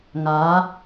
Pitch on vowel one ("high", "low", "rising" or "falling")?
rising